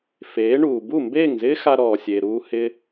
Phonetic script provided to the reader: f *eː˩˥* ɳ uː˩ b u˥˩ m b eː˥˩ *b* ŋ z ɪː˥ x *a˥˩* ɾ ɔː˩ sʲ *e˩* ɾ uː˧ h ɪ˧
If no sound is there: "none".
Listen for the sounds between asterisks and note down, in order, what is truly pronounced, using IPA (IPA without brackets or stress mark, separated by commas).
eː˩˥, none, a˧, e˩